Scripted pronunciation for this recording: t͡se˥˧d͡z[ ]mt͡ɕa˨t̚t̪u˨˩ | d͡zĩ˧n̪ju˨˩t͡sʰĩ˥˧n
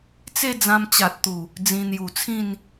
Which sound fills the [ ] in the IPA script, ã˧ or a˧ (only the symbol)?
ã˧